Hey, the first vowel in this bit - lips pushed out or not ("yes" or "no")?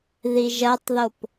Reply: no